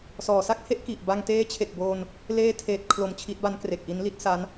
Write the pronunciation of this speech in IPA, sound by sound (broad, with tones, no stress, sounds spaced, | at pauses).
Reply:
s ɔː˩˦ s a˥˩ k̚ h e˥˩ ʔ k i˨˩ ʔ b a˧ ŋ t eː˦˥ t͡ɕʰ e˨˩ k̚ b oː˧ n | l eː˦˥ tʰ eː˨˩ t̚ kʰ l o˩˦ m t͡ɕʰ i˦˥ t̚ b a˦˥ n k r e˨˩ k̚ ʔ i˦˥ n l i˥˩ t̚ s a˦˥ n